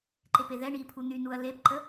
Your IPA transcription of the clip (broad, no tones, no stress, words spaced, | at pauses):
ǃepeðɛɳiː pʰun̪ynuɐ̯ lepǃə